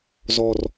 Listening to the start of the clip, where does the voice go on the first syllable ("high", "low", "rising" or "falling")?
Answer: low